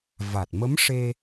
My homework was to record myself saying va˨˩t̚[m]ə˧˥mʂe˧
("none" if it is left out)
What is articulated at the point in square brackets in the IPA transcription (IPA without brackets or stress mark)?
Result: m